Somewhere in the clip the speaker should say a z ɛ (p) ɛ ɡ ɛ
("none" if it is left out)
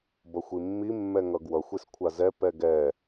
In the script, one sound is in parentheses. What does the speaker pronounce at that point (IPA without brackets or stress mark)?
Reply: p